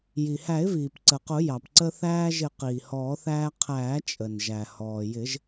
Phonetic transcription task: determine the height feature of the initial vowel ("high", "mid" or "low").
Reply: high